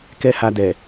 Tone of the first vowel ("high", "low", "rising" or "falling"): high